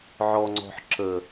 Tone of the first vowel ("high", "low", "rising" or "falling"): low